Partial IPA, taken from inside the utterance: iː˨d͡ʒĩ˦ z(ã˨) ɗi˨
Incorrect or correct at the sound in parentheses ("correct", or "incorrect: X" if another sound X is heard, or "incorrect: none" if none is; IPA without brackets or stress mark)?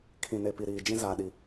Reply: incorrect: a˨